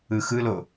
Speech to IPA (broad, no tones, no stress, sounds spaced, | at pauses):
ɯ x ɯ l o